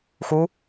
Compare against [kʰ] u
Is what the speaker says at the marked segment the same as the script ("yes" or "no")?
no